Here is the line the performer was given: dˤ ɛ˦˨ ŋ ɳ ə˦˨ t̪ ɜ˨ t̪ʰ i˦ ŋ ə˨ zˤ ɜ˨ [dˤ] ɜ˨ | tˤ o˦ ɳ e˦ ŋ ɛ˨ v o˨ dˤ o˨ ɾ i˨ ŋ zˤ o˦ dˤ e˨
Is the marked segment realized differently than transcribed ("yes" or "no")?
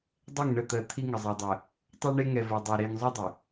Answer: no